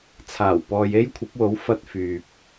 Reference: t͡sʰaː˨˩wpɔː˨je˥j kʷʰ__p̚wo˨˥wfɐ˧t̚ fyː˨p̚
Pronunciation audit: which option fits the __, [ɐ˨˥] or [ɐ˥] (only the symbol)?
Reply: ɐ˨˥